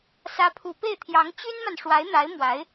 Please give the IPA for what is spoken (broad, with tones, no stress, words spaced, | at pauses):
sä˧˥pʰu˨˩pe˥˩ɪ̯t̪ʰjɑ˧˥ŋ t͡ɕy˥nma˨n ʂwa˧˥ɪ̯n̪a˧˥ɪ̯ mwa˧˥ɪ̯